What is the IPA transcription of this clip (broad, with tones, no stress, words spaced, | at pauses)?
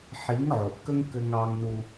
ħi˨˦ŋʕo˨ʔ kə˦ŋ kɘ˦ŋɑ˦ŋnu˦